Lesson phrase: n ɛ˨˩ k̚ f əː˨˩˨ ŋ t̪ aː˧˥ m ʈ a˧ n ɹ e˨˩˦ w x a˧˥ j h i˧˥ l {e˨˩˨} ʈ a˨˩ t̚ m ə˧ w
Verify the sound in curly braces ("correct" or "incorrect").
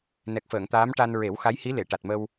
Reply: correct